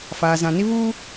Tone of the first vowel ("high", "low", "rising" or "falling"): low